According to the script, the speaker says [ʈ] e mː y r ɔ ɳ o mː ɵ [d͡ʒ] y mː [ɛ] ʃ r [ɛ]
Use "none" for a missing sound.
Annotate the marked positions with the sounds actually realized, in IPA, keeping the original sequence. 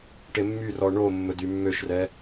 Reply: ʈ, d, ø, ɛ

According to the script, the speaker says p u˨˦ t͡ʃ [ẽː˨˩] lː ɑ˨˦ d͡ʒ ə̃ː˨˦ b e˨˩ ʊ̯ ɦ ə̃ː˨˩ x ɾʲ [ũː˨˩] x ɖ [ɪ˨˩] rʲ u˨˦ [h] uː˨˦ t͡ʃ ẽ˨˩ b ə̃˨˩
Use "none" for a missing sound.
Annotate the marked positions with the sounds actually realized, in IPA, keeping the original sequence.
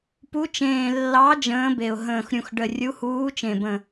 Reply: ẽː˨˩, ũ˨˩, ə˨˩, h

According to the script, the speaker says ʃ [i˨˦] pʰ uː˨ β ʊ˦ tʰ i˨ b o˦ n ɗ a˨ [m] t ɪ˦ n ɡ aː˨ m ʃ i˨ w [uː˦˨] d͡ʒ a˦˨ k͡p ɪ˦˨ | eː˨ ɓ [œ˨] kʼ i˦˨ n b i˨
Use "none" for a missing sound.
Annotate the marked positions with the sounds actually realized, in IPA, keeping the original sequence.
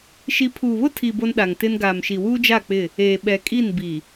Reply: i˨˦, ŋ, uː˦, ɛ˨

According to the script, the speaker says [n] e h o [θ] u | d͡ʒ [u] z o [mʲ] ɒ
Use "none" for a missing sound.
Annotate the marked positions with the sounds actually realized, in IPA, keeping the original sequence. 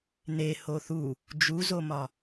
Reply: n, θ, u, m

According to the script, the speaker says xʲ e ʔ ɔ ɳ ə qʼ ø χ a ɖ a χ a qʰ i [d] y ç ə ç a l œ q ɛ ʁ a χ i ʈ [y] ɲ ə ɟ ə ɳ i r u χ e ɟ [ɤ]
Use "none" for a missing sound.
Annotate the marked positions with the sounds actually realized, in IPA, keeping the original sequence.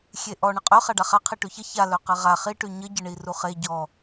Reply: ʈ, y, ɔ

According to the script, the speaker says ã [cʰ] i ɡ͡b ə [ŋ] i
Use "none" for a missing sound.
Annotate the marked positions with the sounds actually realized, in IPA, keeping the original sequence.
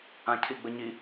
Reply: cʰ, ɲ

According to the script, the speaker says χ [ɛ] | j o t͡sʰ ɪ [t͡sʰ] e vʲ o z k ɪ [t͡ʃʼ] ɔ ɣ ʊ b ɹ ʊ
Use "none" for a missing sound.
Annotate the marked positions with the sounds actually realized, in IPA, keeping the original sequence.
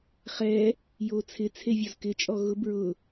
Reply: ɛ, t͡sʰ, t͡ʃʼ

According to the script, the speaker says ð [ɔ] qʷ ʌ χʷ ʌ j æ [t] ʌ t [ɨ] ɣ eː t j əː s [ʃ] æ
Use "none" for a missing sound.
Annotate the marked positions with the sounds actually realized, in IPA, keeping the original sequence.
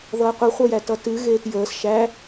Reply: ʌ, t, ɨ, ʃ

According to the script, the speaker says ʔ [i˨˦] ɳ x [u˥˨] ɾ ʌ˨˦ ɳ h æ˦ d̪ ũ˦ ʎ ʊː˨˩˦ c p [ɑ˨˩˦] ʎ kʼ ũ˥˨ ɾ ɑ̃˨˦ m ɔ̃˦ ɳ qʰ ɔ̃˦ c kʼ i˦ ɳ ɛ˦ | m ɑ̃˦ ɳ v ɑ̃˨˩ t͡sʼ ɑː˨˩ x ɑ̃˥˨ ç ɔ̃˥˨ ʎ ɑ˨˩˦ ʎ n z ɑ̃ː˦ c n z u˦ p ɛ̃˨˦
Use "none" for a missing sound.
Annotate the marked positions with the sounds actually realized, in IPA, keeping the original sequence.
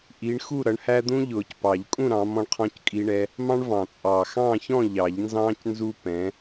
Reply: i˨˦, u˥˨, ɑ˨˩˦

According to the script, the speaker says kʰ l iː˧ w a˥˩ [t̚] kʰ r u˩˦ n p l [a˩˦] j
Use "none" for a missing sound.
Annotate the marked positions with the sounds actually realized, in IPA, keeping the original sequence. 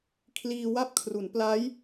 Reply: p̚, a˦˥

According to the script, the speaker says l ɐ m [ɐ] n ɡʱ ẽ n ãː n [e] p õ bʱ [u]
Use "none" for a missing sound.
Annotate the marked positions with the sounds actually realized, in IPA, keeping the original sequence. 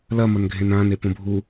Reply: ɐ, e, u

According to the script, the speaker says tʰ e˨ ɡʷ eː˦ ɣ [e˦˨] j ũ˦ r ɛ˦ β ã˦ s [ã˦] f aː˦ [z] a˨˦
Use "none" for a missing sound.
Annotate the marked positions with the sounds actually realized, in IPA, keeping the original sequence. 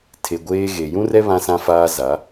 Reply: e˨, ã˦, z

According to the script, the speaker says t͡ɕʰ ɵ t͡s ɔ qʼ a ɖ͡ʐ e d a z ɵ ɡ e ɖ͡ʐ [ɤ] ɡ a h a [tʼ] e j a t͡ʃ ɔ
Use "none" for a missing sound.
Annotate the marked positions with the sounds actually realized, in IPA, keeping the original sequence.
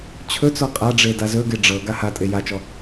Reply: ɤ, tʼ

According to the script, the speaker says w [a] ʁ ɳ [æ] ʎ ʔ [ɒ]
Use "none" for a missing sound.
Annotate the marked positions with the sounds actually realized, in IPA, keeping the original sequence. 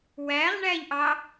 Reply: æ, æ, ɑ

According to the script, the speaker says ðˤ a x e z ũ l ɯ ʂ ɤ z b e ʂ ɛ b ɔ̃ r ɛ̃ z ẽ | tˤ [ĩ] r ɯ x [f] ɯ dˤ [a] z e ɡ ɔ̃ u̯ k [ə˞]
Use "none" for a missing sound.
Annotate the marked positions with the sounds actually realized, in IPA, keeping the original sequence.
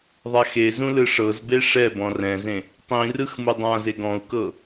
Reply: ĩ, m, ã, ɤ

